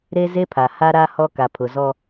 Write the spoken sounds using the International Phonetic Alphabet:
ɾe˦ze˦pʰa˨ ha˦ ɾa˦hɔ˦ ka˨pʰʊ˨ zɔ˦

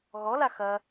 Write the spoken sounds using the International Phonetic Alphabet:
ɣɔla xɐ

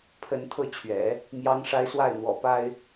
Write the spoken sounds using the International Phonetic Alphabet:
pʰə˧˥nt̪ʰɤ˥˩t͡ɕʰɥɛ̰˨˩˦ | mjɑ˧˥ŋʂa˧˥ɪ̯ swa˥˩ɪ̯n̪wɔ̰˨˩pa˥ɪ̯

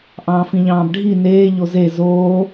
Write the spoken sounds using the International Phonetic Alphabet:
ʔɑ̃ːfĩʎɑ̃ːbɖʱi neː ʎoze zoː

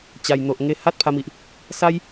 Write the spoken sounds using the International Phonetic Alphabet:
t͡ɕa˨˩jn̪o˨ʔ ŋe˧ ha˦t̚pʰa˧mi˨ʔ | sa˦j

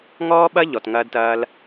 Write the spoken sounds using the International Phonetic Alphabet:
ŋɔː˦ɓɐ˦ ʎɔ˨tŋɐː˧dtɐː˧l

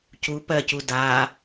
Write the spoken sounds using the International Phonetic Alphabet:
cu pɜcu da

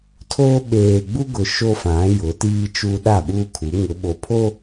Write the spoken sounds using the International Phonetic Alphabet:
tʰo˦ ɓeː˨ɡ͡bu˦ɡʊ˨ ʃo˦fã˨˦ jʊ˨˦tiː˦t͡ʃuː˦ ɗa˦˨ɓuː˦kʰu˨˦ ŋʊ˨˦ɓo˨pʰo˦

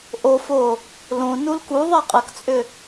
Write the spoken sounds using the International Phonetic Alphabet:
ʔofo | lõ nulkuðˤɛ qʼəkt͡sʼʏ

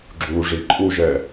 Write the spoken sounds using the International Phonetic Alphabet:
ɡ͡ǁuʐi ǃʼuʒɛ

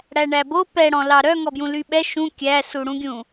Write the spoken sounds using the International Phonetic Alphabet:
ɽæɳæbo pɛɽɔ̃ lɑɾœ ŋɔbjũlyɓɛ ʃũ kʲæsuɽũɡʲũ

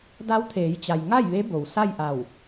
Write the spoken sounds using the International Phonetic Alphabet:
da˧˥wt̪ʰeː˩˧jt͡ɕa˩j ŋa˥˨jʋe˧˥bo˩w sa˥˨jʔa˧˩w

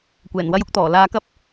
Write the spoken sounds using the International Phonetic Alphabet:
kʷɛː˨˩nwɐ˥jʊ˥k̚t̪ɔː˨˩ laː˧kɐ˥p̚

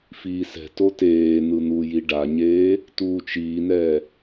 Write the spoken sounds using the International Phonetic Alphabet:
fiːsɛ̤to teːn̪ɯ n̪uji ɖaɲeː | tuːt͡ʃiːnɛː

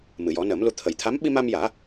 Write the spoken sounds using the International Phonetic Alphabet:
mɨ˨˩˨jɔ˨˩˦nəː˨˩˦mlu˧ t̪ʰə˨˩˨jt̪ʰa˧˥m ɓi˧ma˧mjaː˨˩˦

